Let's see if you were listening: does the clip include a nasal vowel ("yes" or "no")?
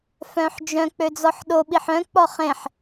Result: yes